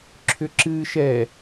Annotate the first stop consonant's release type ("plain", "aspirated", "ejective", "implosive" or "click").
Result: click